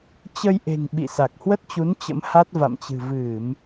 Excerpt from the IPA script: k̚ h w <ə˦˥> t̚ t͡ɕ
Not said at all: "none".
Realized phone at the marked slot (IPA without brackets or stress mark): ə˦˥